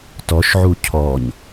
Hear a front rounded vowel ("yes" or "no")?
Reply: no